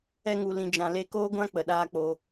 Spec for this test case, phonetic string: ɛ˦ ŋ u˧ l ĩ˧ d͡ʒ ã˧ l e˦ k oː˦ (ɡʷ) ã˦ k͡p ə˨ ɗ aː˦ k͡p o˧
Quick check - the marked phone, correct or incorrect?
correct